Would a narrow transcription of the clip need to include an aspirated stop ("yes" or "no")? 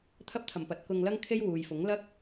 yes